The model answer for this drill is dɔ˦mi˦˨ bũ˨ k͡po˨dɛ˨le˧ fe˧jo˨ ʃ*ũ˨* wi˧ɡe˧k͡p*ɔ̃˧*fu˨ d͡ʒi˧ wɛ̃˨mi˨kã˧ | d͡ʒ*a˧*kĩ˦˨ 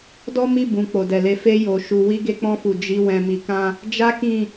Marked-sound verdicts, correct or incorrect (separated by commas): incorrect, correct, incorrect